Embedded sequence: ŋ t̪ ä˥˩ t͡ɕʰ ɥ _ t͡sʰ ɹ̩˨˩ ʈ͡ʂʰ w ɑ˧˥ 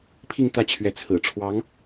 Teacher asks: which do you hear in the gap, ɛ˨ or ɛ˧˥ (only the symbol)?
ɛ˧˥